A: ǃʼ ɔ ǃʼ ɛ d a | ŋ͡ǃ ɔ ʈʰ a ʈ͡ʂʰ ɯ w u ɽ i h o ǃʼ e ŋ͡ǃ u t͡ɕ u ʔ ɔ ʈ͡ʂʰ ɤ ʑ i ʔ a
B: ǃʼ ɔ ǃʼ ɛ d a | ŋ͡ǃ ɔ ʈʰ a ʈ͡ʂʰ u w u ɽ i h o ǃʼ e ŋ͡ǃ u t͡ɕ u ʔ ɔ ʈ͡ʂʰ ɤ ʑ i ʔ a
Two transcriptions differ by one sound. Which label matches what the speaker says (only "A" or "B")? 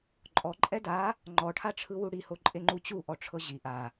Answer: A